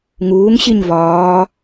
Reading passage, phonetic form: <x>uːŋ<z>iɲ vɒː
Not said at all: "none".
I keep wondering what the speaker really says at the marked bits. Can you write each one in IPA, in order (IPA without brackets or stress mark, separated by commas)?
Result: ŋ, ɕ